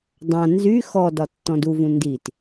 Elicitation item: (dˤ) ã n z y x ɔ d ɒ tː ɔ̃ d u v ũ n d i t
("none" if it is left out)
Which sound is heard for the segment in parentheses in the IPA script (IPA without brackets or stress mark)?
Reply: dˤ